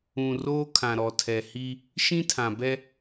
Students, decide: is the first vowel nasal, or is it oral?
nasal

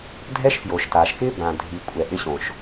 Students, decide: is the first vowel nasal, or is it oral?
oral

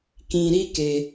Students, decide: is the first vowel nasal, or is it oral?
nasal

